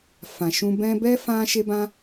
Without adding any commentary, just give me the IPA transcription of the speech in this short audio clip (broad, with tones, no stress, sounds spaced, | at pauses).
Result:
f ã˨ ʃ ũ˧ b ɛ̃˦ b ɛ˦ f ã˦ ʃ e˦ b ã˦